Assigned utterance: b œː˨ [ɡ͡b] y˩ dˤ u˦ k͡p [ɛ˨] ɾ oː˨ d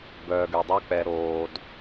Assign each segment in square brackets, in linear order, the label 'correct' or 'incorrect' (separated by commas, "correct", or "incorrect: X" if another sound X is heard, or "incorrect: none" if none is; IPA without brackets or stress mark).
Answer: incorrect: ɡ, correct